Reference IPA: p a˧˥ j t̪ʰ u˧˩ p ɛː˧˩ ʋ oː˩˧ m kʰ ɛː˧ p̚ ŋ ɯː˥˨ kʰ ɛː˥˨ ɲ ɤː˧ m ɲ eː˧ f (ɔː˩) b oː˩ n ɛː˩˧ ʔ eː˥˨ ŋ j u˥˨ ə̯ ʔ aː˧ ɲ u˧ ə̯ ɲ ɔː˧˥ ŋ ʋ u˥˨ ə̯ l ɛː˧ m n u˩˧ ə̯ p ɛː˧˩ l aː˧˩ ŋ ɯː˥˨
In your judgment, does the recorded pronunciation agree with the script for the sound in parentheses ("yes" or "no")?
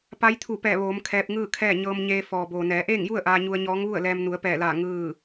yes